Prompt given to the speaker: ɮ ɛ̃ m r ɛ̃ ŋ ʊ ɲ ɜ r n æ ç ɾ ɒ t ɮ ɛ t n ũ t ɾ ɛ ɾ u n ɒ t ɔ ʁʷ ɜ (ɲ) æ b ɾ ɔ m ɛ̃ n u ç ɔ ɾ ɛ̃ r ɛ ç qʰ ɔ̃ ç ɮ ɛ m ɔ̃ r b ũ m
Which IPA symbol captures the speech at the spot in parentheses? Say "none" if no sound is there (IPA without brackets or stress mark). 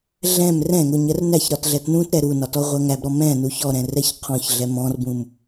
ŋ